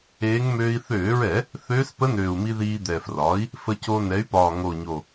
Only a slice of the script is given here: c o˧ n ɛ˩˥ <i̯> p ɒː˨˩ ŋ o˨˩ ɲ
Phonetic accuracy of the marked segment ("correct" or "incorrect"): incorrect